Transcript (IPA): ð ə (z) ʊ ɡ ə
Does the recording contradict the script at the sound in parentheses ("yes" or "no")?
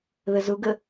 no